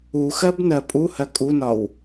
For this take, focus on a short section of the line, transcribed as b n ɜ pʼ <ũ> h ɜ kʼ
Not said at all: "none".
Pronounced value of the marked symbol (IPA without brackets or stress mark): u